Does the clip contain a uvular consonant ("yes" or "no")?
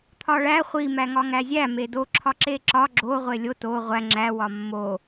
yes